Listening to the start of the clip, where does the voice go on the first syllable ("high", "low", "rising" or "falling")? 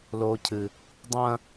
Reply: high